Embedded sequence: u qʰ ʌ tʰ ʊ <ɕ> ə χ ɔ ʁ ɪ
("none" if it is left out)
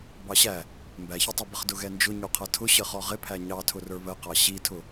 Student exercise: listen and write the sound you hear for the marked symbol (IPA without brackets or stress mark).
ɕ